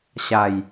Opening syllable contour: low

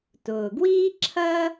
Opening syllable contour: low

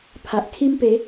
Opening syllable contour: low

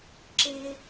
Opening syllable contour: high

